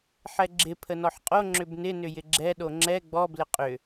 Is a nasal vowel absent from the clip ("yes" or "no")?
yes